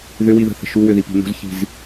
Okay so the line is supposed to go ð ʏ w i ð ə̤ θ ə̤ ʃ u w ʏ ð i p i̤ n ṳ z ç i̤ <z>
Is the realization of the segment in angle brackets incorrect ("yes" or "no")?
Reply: no